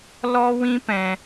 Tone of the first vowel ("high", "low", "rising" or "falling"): high